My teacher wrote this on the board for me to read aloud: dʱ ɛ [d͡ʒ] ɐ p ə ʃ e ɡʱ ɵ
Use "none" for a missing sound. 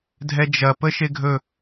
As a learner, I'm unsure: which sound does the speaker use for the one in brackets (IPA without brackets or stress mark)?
d͡ʒ